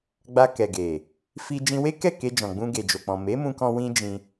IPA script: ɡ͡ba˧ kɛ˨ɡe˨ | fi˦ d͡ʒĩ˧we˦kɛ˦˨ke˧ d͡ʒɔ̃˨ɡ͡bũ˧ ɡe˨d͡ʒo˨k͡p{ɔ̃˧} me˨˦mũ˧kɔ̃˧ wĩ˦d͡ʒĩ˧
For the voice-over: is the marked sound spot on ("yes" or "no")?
no